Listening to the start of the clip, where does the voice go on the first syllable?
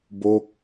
falling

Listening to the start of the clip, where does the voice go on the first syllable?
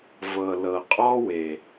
low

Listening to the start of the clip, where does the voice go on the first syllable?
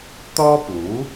high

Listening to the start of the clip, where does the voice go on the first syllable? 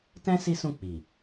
high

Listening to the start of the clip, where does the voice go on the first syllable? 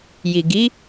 low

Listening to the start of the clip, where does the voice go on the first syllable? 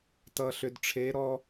low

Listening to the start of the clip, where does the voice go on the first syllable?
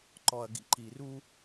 low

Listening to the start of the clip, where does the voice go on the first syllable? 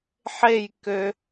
falling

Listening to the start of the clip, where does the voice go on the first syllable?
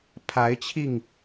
rising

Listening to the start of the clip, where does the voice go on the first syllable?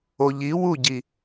low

